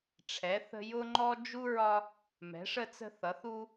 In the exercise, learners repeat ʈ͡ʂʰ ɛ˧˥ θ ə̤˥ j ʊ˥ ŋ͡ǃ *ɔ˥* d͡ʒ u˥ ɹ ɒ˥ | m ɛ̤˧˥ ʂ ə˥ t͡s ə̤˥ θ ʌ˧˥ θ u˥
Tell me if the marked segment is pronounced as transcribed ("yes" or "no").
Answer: yes